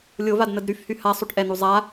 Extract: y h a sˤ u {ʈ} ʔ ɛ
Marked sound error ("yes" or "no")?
no